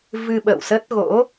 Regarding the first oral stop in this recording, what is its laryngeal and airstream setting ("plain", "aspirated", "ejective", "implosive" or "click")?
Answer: implosive